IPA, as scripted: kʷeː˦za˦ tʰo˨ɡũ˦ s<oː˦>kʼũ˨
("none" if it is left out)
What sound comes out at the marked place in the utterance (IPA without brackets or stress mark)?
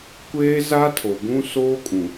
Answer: oː˦